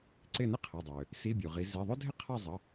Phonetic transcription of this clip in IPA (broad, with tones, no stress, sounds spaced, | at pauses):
ǀ ɪ˦˨ n ɪ˥ qʰ ɐ˩˧˩ dˤ ø˩ | s i˧˥˧ bʲ u˩ ʁ i˨˦ z i˩˧˩ ðˤ ʏ˥ dʱ ɪ˥ qʰ a˦˨ zˤ ə˩˧˩